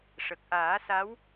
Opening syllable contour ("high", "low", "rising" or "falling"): low